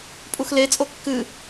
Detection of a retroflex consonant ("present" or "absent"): absent